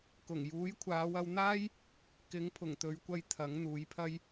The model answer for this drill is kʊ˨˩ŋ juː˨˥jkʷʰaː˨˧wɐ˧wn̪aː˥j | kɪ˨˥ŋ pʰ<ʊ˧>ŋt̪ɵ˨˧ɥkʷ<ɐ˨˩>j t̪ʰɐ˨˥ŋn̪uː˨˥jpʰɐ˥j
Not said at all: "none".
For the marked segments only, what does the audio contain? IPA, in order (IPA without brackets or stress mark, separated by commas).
ʊ˨˩, ɐ˧